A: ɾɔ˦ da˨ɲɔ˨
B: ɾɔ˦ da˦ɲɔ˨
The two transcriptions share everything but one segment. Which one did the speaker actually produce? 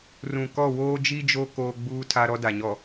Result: A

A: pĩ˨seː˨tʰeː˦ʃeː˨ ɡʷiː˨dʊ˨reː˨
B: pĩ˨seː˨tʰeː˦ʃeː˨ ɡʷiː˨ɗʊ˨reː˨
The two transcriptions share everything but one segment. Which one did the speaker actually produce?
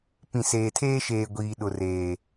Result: B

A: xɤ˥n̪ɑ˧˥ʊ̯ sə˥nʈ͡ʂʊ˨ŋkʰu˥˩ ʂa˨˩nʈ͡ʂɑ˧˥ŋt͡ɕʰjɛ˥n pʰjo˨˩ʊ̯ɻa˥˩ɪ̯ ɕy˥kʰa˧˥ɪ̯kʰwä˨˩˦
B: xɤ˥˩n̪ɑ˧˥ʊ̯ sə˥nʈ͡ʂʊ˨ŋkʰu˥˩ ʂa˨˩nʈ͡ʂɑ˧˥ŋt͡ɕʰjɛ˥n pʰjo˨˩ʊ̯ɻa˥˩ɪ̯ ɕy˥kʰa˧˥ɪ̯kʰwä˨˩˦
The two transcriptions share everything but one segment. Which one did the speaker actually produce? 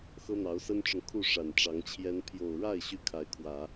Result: A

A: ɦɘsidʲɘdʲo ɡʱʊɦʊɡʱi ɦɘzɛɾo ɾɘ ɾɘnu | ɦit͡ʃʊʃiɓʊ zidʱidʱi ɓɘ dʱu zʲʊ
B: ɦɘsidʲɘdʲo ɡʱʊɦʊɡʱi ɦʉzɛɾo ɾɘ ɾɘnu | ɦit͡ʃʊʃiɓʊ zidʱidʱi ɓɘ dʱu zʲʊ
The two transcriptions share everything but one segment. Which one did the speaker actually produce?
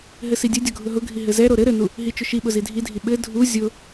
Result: A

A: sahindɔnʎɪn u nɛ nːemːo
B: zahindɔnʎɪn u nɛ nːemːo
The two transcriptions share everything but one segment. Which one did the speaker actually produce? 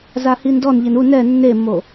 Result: B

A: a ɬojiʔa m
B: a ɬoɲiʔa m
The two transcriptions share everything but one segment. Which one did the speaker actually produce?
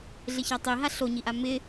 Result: B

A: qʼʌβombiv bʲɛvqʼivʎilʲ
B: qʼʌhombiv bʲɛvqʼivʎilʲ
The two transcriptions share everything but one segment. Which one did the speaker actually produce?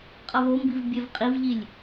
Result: A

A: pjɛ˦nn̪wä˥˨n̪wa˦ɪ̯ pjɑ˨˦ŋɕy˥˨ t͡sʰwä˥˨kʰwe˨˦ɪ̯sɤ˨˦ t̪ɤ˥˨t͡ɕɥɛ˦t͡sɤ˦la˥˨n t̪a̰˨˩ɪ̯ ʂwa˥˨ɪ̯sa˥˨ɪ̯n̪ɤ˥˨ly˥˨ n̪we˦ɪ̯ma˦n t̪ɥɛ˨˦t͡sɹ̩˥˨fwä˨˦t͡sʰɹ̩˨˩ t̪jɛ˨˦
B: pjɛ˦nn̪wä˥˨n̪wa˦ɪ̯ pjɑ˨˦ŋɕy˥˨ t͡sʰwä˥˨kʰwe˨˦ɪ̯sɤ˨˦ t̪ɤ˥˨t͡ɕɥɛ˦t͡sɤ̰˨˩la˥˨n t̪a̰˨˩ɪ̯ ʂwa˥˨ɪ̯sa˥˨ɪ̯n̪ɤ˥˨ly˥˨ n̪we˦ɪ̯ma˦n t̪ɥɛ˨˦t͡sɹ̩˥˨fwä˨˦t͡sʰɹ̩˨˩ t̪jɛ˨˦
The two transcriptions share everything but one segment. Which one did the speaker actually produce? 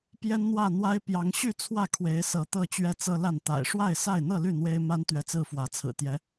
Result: A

